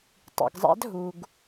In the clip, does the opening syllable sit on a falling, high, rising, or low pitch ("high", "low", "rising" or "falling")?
low